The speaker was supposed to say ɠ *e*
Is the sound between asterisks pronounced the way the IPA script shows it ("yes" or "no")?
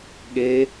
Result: yes